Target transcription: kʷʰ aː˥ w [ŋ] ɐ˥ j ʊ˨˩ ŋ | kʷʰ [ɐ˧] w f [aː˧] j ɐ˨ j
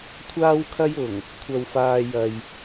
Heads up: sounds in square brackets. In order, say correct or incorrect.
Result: incorrect: kʰ, correct, correct

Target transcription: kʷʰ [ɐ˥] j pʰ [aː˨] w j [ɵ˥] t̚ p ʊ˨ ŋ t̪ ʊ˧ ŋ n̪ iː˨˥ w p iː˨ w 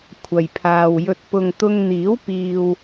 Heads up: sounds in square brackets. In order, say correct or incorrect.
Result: incorrect: ɐ˨, correct, incorrect: ɵ˨

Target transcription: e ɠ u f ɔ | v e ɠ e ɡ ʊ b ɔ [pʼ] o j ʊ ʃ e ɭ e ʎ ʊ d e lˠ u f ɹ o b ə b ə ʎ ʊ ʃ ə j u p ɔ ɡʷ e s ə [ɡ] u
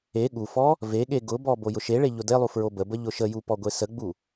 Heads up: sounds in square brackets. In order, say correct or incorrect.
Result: incorrect: b, incorrect: ɡ͡b

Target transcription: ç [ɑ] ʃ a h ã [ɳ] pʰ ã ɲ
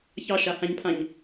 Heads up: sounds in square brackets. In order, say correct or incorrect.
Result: correct, incorrect: ɲ

